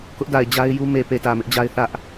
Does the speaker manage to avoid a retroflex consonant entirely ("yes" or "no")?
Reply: yes